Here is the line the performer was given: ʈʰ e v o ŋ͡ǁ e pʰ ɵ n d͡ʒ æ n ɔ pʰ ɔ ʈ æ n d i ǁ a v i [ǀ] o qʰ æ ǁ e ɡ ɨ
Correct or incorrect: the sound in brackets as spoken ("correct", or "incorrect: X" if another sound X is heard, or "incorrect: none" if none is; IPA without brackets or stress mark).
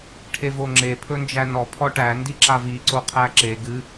correct